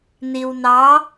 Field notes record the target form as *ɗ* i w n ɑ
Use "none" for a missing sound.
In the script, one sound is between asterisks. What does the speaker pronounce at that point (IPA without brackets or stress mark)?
n